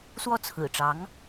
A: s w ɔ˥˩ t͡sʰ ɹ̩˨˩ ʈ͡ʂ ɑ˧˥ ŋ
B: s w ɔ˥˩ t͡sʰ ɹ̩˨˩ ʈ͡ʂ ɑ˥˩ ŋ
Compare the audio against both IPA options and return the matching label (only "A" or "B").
A